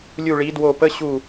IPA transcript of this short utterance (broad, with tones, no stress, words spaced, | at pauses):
lʲu˦˨ɭi˨˥dwo˦˨ pə˧˥˧ɕu˦˨